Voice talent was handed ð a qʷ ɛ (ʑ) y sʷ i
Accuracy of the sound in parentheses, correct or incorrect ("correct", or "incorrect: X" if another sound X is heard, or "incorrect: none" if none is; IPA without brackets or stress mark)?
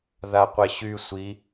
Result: incorrect: ɕ